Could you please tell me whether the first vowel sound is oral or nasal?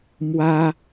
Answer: oral